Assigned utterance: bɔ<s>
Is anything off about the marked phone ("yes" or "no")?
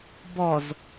yes